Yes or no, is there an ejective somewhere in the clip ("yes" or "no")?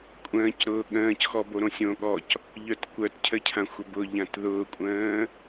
yes